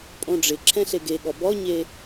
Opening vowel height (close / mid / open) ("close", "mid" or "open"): mid